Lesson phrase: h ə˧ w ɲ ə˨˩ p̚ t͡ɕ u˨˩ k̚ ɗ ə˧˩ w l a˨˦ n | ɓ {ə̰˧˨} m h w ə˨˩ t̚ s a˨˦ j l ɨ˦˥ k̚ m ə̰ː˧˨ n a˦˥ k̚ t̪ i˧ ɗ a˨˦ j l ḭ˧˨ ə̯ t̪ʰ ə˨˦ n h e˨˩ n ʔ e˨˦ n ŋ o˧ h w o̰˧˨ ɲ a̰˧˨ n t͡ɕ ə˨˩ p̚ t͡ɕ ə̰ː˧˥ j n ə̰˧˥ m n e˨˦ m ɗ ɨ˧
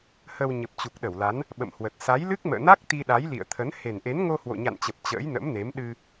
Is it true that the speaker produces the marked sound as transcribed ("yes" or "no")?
yes